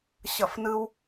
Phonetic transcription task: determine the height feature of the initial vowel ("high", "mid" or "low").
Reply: mid